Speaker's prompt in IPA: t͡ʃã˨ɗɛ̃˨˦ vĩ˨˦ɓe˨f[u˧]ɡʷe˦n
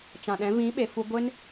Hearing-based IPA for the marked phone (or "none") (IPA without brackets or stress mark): u˧